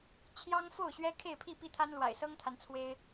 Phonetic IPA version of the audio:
t͡ɕʰjɑ˦ŋfo˥˨ʊ̯ ɕɥɛ˦ kʰe˥˨ɪ̯pʰi˥˨pi˥˨t̪ʰa˦n lwa̰˨˩ɪ̯sɤ˦ŋt̪ʰa˨˦n t͡sʰwe˦ɪ̯

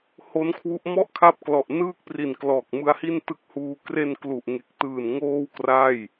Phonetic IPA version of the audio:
ho˦˥nkʰwu˦˥ʔ mɔ˥˩ʔkʰa˦˥p̚ klɔ˨˩ʔnɯː˥˩k̚pri˨˩n klɔː˨˩k̚mɯ˦˥a̯hi˥˩n tɯ˦˥k̚huː˧ kre˧nklu˨˩ʔŋe˨˩k̚tɯː˨˩n ŋoː˥˩wkra˥˩j

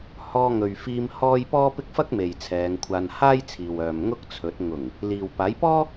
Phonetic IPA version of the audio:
hɔː˧ŋɵ˨ɥfiː˧m hɔː˥j pɔː˥pɪ˥k̚ fɐ˥k̚me˨j t͡sʰɛː˨˧ŋkʷʰaː˧n haː˥jt͡sʰiː˨w œː˨m ŋʊ˥k̚t͡sʰɵ˨˥t̚ ŋʊ˨˩ŋ | liː˨wpaː˨˥jpɔː˥

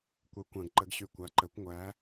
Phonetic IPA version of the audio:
kʷɛ˨˦kʷã˨ɡǃə˨˦ɡ ɕy˨kʷa˨ǃə˨˩˦kʷ ŋʷæ˨˦

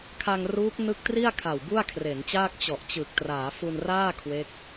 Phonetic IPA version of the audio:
kʰa˧ŋruː˦˥k̚ nɯ˦˥k̚tri˥˩a̯ kʰa˨˩wbu˥˩a̯kʰre˩˦nt͡ɕaː˥˩k̚ t͡ɕɔ˨˩ʔt͡ɕɯ˨˩k̚ traː˩˦fu˧nraː˥˩ kʰwe˦˥k̚

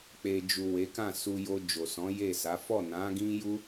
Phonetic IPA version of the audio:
k͡pe˨ d͡ʒu˨ we˨˦ kã˦˨su˧ jo˧ d͡ʒo˨sɔ̃˨˦ je˦˨sa˨˦ fɔ˦˨nã˨˦ɡĩ˦ju˦

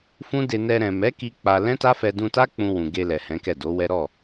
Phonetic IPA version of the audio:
fũ˦de˧ nɛ˧ ɾɛ̃˨mɛ˨˦ki˧ k͡pa˧ lɛ̃˦ta˦fɛ˧ dũ˧ta˦ k͡pũ˧wũ˨ ɡe˧lɛ˨ hɛ̃˨˦kɛ˦˨do˨˦wɛ˦ ɾɔ˦˨

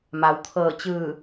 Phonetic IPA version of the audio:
ma˩wt̪ʰɤː˧˩t͡ɕɯː˧˩

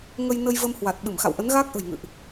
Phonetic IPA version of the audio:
ŋə˧jnə˧j və˧mhwa˨˩t̚ ɓɨ˧˩mxa̰˧˨wʔə˨˦n ɣaː˦˥k̚ʔə̤˨˩jŋɨ̰˧˨ʔ

